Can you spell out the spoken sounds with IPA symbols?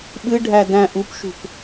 ɓ ɨ ɖʱ æ d æ̃ ʔ u p ʃ ṳ p

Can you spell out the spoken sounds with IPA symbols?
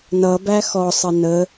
n ʌ b æ x ɔ sˤ ə n ə

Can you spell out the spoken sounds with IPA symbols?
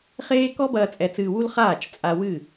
χ eː˦ k ɔ˦ b ɐː˧ t͡sʼ ɛ˧ t͡s ɨː˧ w u˦ l χ aː˦˨ t͡ʃ t͡sʼ a˧ w ɨ˦˨

